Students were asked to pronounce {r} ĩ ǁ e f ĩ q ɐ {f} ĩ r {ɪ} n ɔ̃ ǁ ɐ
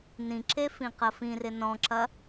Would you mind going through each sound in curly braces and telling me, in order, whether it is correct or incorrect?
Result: incorrect: n, correct, correct

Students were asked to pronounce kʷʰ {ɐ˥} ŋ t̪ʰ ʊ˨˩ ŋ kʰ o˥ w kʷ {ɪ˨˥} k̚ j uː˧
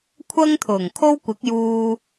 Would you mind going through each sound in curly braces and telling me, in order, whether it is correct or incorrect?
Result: correct, correct

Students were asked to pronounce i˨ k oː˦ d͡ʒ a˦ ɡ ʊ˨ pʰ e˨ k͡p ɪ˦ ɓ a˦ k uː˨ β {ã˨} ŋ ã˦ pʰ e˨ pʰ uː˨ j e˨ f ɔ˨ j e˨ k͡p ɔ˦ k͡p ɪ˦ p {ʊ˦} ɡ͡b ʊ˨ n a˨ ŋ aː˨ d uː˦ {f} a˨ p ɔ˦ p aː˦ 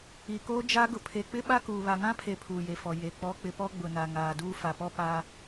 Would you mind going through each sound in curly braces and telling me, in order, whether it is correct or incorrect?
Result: incorrect: a˨, incorrect: ɔ˦, correct

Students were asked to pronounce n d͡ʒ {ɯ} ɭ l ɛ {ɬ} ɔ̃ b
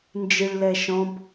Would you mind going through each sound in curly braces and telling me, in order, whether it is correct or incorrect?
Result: correct, incorrect: ʃ

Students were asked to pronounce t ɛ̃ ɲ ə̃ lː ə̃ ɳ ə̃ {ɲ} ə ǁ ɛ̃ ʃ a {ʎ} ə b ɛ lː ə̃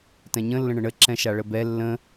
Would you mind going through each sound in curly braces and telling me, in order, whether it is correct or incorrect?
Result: incorrect: ɳ, incorrect: ɭ

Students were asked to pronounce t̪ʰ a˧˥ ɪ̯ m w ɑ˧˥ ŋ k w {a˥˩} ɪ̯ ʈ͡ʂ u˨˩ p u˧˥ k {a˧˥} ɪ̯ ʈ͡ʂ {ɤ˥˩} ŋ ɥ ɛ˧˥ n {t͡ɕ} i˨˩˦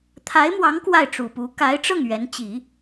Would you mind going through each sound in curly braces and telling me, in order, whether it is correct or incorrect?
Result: correct, correct, correct, correct

